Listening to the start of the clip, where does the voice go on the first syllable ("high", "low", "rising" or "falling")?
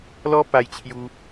high